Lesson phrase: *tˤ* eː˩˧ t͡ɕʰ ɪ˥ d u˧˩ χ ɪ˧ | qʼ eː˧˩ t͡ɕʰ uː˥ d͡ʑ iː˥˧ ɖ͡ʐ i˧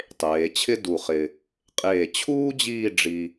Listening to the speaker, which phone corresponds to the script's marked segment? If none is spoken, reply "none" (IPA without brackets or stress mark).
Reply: tˤ